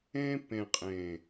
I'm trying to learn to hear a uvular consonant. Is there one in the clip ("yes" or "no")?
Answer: yes